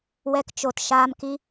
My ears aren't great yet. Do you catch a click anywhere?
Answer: no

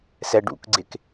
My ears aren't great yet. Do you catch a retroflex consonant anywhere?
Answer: yes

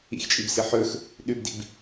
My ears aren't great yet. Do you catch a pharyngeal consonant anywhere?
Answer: yes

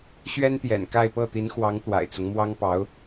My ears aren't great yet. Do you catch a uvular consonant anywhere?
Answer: no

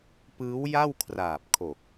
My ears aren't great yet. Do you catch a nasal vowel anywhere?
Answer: no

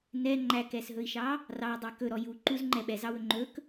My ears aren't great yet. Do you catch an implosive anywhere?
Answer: yes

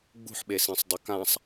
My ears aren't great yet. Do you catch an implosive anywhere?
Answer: yes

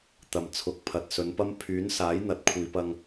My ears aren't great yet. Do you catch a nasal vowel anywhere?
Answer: no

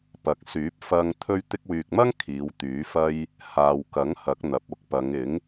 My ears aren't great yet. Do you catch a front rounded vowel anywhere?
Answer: yes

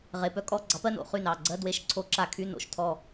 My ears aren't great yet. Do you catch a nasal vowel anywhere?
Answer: no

